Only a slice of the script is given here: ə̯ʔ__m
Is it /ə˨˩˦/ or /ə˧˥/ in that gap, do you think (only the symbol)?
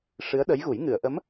ə˧˥